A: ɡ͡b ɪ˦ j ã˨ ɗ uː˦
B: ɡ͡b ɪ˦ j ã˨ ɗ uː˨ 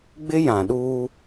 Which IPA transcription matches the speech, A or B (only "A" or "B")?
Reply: A